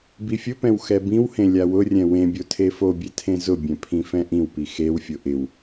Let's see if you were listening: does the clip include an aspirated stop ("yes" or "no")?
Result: yes